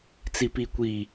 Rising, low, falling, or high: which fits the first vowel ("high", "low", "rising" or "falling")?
low